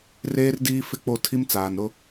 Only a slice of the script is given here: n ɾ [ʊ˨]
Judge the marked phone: incorrect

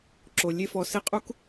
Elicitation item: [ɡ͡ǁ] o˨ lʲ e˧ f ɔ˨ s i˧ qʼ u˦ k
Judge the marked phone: incorrect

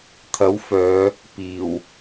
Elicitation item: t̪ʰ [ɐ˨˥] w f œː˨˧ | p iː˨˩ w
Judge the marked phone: correct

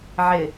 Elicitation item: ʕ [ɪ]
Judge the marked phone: correct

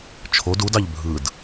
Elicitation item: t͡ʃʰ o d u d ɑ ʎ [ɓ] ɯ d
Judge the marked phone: incorrect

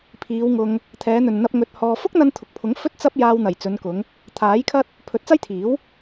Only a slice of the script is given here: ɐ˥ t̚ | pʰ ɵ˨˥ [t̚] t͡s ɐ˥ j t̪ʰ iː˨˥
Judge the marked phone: correct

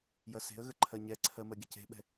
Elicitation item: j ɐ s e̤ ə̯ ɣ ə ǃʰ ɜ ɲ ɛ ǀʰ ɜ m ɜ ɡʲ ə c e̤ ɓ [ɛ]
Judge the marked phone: incorrect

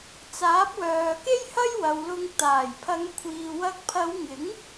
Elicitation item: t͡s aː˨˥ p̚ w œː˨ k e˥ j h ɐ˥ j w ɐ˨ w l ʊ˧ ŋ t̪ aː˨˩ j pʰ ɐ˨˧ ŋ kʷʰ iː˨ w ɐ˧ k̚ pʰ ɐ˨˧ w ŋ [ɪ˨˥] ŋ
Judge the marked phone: correct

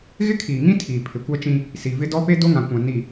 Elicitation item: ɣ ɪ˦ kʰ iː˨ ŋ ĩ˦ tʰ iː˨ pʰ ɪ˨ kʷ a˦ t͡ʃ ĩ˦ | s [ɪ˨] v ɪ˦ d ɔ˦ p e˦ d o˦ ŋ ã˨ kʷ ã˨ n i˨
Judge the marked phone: incorrect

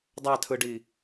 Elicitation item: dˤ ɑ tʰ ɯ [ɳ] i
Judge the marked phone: incorrect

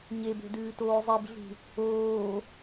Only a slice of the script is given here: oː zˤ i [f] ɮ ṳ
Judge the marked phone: incorrect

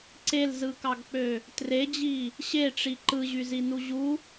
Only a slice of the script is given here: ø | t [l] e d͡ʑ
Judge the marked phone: incorrect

